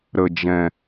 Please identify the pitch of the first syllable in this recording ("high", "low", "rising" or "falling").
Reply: low